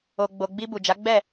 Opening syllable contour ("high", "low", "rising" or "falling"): low